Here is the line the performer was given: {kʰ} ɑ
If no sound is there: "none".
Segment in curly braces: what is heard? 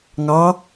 ŋ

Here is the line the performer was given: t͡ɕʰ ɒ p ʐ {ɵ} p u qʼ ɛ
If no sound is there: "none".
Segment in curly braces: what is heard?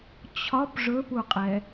ɵ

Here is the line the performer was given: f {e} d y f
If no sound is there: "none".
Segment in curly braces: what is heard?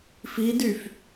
i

